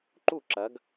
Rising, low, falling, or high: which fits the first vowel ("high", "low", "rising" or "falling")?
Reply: falling